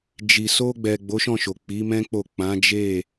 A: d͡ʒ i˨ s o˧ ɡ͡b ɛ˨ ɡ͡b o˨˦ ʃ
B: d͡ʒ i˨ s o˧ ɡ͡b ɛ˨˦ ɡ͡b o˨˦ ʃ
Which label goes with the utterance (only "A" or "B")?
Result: A